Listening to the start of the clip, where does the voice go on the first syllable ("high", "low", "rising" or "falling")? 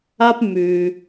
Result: high